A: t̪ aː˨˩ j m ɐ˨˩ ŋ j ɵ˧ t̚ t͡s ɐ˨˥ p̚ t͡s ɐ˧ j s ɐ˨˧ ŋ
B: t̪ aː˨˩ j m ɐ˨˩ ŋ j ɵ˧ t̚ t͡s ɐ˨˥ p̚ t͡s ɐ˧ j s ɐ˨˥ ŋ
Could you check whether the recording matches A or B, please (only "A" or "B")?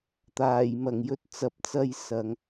A